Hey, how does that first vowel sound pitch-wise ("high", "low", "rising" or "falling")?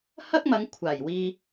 high